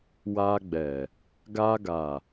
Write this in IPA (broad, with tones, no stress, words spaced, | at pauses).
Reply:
wa˧ ɡ͡bɛ˨ | ɡa˧ɡa˨